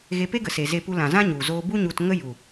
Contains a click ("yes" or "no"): no